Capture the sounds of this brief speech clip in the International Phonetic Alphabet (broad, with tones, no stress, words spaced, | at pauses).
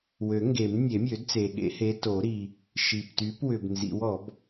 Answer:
wø˨˩˦ŋɡe˨˩˦m nʲe˨˩˦mʲø˨˩˦dt͡se˨ɠḛ˨˦ he˨˦to˨˩˦ɾi˨ | ʃi˨pty˨˦pwʏ˨b nzḭ˨˦wɔ˨˩˦b